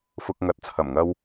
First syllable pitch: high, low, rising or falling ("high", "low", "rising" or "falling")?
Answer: low